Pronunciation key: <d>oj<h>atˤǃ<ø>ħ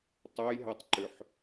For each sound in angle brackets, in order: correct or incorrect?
incorrect, incorrect, correct

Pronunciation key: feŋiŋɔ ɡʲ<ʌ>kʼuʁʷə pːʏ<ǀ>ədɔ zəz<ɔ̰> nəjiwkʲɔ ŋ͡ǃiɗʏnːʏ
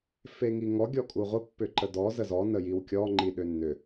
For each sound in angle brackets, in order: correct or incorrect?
incorrect, incorrect, incorrect

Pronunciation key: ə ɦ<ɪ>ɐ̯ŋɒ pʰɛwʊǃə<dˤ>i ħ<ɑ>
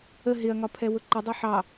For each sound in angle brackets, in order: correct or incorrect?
correct, correct, correct

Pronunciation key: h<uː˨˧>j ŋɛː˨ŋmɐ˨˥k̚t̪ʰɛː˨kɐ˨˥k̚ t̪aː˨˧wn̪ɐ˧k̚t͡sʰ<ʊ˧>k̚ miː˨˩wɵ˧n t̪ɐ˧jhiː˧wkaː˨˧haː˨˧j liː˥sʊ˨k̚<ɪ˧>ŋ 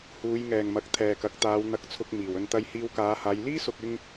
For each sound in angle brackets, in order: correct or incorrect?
correct, correct, correct

